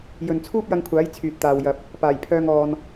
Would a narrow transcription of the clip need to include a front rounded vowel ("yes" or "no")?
yes